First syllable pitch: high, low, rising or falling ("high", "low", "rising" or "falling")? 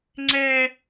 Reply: high